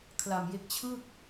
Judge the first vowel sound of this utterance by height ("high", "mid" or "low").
low